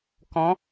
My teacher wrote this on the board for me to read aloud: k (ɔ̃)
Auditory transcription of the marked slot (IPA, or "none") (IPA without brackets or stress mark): ɔ̃